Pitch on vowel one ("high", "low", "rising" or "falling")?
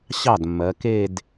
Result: falling